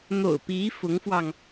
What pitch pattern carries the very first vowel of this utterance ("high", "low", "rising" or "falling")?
low